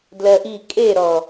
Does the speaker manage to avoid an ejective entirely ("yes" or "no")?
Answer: no